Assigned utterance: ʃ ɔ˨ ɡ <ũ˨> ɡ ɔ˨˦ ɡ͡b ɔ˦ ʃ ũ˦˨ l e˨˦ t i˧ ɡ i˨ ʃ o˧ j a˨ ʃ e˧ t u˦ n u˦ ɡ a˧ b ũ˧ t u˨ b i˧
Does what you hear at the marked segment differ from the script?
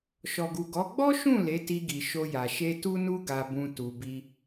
yes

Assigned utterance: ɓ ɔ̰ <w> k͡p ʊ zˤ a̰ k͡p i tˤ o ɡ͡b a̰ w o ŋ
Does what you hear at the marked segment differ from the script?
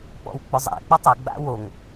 no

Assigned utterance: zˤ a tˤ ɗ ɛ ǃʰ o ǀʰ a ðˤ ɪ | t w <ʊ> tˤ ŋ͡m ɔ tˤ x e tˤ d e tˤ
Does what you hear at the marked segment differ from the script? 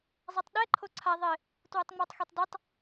no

